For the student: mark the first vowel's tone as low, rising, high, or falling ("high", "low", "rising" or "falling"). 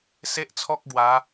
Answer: high